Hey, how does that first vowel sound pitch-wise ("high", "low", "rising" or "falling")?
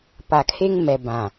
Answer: low